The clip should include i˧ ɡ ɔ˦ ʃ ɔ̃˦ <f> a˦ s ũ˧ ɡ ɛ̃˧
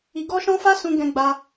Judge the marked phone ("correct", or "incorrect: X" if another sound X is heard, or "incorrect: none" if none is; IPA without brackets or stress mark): correct